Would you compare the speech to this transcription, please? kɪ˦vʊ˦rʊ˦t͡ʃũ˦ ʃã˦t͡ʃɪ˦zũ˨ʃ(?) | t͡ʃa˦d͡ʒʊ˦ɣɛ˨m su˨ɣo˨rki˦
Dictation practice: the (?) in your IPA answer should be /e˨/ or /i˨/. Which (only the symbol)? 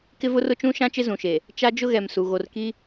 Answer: e˨